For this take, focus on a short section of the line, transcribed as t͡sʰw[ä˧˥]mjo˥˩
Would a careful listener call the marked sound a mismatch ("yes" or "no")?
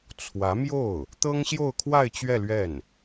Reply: no